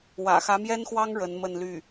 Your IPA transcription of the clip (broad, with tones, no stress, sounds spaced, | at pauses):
w ä̰˨˩ x ä˧˥ m j ɛ˥ n x w ɑ˥ ŋ ɻ ə˧˥ n m ə˥˧ n l y˥˩